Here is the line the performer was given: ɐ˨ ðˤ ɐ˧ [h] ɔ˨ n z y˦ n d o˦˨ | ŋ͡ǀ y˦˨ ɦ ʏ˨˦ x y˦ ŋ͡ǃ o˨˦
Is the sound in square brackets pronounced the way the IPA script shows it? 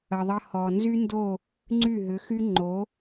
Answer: yes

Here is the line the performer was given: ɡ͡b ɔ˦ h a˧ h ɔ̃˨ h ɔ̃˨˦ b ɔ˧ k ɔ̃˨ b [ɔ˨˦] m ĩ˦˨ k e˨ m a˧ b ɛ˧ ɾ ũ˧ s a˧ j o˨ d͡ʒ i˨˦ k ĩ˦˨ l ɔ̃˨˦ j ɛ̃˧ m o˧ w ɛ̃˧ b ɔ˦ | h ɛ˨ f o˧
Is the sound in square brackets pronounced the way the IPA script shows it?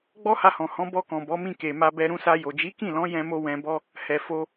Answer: yes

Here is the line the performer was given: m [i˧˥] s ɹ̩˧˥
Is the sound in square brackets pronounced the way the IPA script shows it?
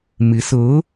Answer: yes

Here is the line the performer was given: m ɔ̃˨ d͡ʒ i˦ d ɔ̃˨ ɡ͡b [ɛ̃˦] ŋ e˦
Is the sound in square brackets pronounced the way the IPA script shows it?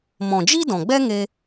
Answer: no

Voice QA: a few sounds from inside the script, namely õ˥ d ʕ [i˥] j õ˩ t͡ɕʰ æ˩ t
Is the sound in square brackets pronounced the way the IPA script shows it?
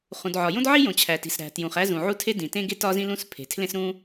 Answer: yes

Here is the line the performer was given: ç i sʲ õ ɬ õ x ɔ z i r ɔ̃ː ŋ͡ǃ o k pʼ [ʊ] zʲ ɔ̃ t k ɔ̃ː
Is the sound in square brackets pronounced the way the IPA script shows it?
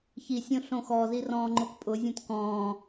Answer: yes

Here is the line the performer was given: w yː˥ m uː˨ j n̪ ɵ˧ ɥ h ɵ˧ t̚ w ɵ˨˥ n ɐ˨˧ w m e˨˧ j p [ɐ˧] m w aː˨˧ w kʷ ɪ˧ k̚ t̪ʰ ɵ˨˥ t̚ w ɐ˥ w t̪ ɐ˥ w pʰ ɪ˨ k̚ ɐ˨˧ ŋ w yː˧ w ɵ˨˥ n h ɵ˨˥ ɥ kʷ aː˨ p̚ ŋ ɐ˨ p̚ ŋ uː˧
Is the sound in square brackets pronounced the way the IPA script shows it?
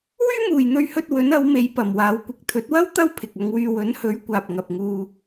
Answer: no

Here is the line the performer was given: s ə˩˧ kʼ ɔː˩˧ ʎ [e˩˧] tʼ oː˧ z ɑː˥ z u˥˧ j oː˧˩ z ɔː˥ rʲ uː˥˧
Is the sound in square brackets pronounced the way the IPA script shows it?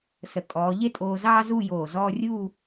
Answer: no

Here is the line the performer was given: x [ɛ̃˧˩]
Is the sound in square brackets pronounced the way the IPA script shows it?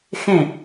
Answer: no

